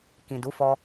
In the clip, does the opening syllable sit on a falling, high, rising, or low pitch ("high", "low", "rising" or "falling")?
low